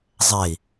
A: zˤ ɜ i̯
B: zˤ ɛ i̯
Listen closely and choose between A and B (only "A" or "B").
B